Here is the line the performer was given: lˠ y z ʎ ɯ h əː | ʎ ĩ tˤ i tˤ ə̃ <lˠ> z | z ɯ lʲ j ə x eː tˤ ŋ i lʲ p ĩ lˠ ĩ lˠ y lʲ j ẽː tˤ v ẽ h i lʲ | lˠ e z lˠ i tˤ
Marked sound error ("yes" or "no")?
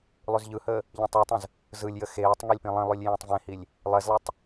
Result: yes